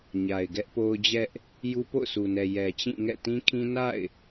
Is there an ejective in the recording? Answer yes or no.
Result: no